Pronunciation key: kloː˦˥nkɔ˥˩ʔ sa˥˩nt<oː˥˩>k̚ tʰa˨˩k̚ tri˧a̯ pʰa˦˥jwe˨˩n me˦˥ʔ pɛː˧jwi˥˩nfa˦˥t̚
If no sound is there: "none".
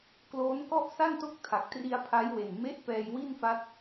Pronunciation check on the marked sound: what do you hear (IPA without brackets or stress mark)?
o˥˩